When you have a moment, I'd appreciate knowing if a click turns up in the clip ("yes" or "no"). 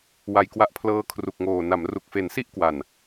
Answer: no